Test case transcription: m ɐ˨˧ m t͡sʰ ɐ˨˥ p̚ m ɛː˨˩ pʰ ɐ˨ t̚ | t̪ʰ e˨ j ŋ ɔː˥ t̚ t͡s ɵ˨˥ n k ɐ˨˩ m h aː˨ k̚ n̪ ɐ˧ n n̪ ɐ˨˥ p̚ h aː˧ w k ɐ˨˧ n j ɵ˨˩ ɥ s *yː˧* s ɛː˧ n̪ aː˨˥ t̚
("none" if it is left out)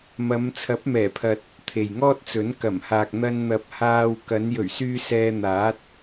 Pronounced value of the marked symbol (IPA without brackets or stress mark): yː˧